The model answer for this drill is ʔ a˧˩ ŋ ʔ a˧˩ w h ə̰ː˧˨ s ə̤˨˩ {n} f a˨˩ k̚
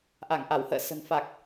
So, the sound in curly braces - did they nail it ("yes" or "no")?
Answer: yes